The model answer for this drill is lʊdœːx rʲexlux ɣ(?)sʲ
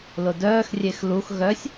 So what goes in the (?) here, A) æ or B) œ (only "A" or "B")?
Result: B